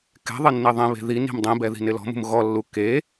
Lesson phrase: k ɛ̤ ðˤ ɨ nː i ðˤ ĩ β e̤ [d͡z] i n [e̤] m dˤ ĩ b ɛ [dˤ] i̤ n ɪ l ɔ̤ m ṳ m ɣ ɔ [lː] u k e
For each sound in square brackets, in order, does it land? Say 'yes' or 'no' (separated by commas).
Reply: no, no, no, yes